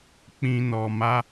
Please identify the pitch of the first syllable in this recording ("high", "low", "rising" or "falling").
low